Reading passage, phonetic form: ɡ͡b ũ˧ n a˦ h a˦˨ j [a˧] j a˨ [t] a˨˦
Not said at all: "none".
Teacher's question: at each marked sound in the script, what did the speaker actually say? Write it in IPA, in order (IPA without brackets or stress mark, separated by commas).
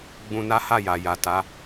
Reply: a˨, t